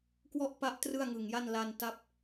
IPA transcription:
k w ɔ˥˩ ʔ p a˦˥ ʔ t r ɯ˥˩ a̯ ŋ ɯ˨˩ ŋ j a˥˩ n l a˧ n t a˦˥ p̚

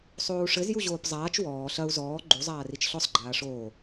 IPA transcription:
sˤ oː u̯ ʂ ɘ z j u ʑ oː p zˤ aː t͡ʃ w ɔː ɬ ɐ u̯ z ɔː ɡ͡ǃ u zˤ aː r i t͡ʃ ɬ ɔ sˤ ɡ͡ǃ aː ʂ oː

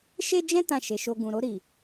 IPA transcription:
ʃ e˦ d͡ʒ ɛ̃˦ t ã˦˨ ʃ e˧ ʃ o˧ ɡ ũ˨ ɾ o˧ ɾ i˨

